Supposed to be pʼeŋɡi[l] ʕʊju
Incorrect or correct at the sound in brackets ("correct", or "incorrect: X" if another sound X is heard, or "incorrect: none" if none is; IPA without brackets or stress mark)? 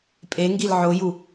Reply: correct